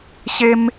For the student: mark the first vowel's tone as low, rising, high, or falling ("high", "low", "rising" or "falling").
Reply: high